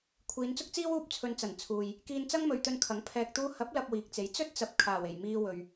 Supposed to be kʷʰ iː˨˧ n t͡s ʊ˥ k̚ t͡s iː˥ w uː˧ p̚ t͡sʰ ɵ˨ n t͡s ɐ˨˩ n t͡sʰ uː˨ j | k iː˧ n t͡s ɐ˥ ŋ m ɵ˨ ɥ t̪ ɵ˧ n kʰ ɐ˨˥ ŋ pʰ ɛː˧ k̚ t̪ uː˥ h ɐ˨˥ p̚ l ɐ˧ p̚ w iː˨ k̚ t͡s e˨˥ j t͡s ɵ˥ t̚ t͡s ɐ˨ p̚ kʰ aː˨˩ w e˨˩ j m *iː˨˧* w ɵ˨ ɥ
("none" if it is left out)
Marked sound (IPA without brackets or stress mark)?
iː˧